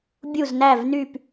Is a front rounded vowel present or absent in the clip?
present